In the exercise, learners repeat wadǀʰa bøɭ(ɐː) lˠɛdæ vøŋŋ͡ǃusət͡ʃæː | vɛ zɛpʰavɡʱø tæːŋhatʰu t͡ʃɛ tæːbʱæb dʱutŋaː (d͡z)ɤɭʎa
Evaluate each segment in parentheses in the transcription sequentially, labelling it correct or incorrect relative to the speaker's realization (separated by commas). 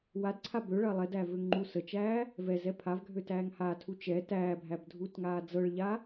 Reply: correct, correct